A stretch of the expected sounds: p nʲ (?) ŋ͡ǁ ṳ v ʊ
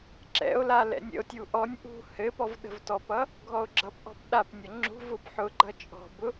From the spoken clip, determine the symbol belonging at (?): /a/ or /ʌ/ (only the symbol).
ʌ